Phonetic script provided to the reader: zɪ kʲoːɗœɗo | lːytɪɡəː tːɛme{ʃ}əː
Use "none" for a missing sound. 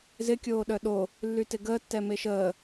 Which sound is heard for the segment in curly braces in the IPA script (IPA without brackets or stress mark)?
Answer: ʃ